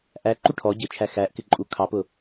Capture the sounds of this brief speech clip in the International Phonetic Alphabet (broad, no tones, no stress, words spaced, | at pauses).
ʔæǃu ʈʰɔ ɟɪt͡ʃʰæ xæʔkɪǃʼu kʰɑpʊ